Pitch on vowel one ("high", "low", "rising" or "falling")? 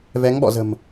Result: rising